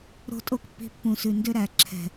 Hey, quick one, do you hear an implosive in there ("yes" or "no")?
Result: no